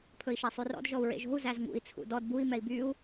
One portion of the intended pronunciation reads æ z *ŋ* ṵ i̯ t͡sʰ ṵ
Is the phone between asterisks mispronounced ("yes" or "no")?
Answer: no